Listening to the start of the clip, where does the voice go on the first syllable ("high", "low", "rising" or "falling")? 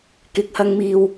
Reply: low